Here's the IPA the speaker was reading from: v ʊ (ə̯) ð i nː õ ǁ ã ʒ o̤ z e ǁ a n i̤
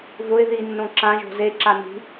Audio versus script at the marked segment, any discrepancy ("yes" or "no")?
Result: yes